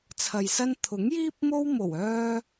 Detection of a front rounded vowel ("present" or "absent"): present